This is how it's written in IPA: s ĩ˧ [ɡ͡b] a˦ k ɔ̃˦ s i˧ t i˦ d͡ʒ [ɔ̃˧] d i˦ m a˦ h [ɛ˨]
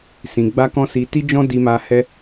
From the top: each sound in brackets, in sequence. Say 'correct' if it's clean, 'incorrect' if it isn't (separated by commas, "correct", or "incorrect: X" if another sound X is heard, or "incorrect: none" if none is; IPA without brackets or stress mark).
correct, incorrect: ɔ̃˦, incorrect: ɛ˦